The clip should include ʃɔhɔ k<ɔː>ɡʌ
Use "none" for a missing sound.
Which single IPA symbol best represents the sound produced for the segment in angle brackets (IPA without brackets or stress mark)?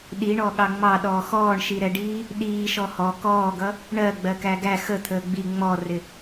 ɔː